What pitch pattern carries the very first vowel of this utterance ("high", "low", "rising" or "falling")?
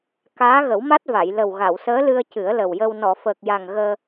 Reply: rising